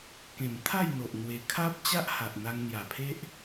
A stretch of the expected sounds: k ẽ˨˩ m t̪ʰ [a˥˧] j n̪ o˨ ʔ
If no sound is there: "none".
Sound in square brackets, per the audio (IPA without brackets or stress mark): a˥˧